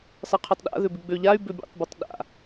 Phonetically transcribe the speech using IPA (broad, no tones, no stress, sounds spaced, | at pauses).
sˤ ɪ qʰ ʏ tˤ ɗ a̰ ð ʏ b ɪ ɡ͡b ø ʎ a y̯ b ø bʲ ḛ tˤ b u tˤ ɗ a̰